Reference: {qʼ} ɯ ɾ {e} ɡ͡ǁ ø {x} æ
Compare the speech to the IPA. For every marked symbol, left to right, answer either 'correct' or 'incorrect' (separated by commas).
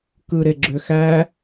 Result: incorrect, correct, correct